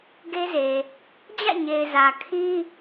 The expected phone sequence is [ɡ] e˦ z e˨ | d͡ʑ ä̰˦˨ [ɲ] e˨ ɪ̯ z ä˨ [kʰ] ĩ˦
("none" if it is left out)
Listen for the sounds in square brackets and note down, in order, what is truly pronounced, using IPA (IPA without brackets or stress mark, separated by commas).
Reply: ɡ, ɲ, kʰ